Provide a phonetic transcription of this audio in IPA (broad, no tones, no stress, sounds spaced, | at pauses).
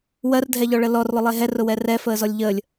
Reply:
w ɜ r dʱ ɛ ʎ ɔ ɭ ə l ɔ r lˠ ʊ lˠ e ɦ ɛ r ʊ w ɛ r ɛ f əː z ɔ lʲ ʎ əː lʲ